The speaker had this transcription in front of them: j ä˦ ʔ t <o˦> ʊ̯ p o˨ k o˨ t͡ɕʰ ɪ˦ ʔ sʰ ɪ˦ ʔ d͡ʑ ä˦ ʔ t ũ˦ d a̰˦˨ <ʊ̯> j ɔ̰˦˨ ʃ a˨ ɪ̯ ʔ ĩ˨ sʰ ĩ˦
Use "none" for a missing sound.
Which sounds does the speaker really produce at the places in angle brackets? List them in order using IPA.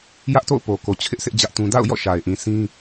o̰˦˨, ʊ̯

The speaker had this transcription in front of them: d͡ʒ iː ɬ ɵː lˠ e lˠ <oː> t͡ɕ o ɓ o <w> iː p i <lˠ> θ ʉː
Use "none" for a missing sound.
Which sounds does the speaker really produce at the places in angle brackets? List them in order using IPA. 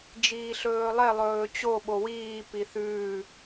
ɵː, w, none

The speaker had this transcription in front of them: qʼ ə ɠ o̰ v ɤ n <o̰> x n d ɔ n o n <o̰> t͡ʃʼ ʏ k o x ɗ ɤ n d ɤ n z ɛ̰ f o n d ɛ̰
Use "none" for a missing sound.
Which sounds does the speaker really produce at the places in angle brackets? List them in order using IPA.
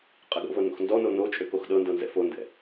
o̰, o

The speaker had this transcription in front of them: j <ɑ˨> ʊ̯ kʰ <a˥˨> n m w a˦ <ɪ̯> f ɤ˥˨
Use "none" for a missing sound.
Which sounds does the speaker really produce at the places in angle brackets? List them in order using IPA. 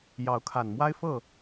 ɑ˨˦, a˨˩, ɪ̯

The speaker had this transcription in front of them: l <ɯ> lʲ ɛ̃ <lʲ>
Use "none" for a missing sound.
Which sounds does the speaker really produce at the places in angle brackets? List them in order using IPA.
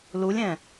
u, none

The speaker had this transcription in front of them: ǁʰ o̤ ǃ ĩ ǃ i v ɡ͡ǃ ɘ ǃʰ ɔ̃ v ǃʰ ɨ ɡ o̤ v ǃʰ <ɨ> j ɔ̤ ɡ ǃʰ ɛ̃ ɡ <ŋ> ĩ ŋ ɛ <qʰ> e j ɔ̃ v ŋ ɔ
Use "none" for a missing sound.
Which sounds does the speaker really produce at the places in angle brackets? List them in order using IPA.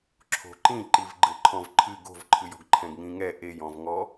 ɨ, ŋ, ʔ

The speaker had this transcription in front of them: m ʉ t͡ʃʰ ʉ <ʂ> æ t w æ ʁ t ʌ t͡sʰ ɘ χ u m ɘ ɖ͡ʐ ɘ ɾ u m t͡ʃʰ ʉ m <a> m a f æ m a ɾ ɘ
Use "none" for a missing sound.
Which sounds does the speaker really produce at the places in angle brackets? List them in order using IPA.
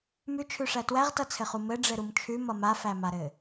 ʂ, ʌ

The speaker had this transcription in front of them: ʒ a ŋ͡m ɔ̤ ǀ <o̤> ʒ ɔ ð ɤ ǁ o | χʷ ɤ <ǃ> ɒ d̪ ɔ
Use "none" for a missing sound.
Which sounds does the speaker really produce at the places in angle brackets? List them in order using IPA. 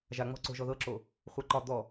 o̤, ǃ

